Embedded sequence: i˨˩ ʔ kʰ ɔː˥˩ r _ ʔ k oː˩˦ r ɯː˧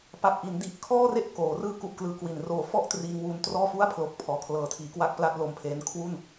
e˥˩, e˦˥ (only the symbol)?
e˥˩